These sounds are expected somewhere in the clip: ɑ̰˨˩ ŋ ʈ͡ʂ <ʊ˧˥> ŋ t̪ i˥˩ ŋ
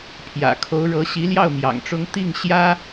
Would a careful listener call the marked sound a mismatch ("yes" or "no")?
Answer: yes